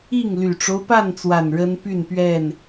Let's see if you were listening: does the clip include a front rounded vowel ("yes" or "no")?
yes